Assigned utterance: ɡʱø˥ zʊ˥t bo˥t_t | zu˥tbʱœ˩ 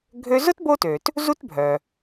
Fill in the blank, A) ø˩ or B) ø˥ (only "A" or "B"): A